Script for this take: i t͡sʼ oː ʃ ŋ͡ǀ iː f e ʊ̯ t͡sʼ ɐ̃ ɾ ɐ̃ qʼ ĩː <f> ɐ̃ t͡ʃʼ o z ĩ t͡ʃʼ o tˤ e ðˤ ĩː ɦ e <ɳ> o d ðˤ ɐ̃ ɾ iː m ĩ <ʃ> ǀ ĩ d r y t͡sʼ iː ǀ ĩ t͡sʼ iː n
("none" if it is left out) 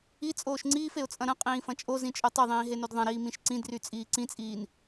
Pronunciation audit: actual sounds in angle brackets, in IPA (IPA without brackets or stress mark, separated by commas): f, n, ʃ